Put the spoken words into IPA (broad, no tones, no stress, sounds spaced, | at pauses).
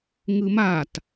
ŋ ɯ m a t